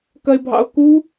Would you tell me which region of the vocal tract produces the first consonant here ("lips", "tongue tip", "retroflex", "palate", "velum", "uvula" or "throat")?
velum